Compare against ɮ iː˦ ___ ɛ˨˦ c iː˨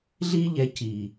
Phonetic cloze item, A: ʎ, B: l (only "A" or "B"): A